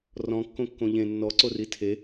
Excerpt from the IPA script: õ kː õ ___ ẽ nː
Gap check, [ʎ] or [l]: ʎ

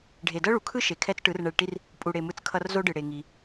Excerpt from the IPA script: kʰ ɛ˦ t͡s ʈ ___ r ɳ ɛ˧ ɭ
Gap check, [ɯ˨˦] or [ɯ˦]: ɯ˨˦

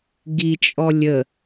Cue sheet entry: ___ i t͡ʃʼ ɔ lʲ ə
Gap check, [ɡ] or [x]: ɡ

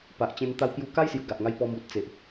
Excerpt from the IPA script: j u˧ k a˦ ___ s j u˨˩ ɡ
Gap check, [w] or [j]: j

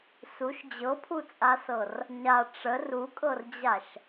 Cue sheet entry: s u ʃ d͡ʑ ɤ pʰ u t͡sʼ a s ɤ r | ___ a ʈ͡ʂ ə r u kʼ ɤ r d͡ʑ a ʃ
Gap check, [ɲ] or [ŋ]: ɲ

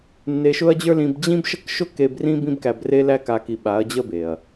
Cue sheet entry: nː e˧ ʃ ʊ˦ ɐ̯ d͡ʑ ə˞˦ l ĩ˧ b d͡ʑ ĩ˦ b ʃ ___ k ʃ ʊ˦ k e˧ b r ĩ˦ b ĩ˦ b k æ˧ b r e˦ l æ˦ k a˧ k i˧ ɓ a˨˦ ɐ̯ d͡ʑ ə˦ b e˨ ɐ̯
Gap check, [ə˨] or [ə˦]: ə˦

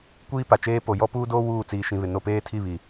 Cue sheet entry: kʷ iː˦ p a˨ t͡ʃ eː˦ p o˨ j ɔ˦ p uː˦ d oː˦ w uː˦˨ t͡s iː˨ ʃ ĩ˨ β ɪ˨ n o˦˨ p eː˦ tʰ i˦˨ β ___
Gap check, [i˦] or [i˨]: i˨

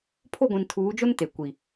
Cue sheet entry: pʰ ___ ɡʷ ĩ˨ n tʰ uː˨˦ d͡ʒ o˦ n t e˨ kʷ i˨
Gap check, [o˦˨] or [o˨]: o˦˨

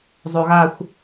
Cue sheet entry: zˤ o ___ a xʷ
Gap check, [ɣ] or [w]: ɣ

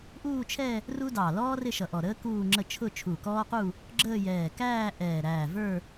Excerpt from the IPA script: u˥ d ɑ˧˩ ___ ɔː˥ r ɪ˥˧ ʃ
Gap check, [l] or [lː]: l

